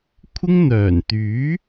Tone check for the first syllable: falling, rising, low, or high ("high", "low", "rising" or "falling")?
high